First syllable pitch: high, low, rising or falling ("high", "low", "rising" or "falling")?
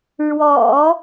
low